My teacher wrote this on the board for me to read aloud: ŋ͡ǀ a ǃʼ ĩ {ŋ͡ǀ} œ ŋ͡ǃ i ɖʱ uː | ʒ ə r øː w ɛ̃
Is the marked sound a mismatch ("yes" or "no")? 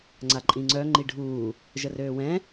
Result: no